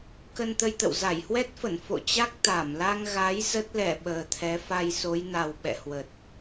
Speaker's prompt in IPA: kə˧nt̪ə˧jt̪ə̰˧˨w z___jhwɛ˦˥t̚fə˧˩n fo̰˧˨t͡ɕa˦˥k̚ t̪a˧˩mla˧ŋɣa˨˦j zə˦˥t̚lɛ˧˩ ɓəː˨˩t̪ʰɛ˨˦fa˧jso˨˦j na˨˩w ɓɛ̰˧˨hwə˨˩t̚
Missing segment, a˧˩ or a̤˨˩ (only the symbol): a˧˩